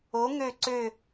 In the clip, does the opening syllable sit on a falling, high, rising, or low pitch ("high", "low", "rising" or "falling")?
rising